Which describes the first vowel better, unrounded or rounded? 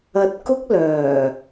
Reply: unrounded